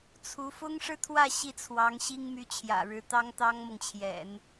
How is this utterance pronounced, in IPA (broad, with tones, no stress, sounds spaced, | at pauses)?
t͡sʰ u˧˥ f ʊ˥ ŋ ʂ ɻ̩˥ t̪ʰ w ä˥˧ ɕ i˥˩ t͡sʰ w ɑ˧˥ ŋ ɕ i˥ ŋ m y˧˥ t͡ɕʰ j ä̰˨˩ ɻ ɻ̩˧˥ t̪ ɑ˥ ŋ t̪ ɑ˥ ŋ m ɤ˨ ŋ t͡ɕʰ j ɛ̰˨˩˦ n